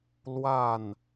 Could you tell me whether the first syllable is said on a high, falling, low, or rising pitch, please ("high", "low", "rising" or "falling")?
falling